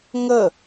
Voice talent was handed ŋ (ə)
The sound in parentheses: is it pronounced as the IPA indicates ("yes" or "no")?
yes